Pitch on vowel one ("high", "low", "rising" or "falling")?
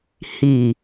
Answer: low